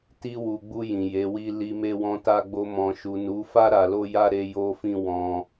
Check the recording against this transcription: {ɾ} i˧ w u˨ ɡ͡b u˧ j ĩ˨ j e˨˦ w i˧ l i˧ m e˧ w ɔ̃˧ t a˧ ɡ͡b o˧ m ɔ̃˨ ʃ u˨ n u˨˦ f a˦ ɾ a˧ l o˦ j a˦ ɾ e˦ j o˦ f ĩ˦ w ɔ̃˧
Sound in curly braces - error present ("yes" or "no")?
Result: yes